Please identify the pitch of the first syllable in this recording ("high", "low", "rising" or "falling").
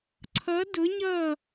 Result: rising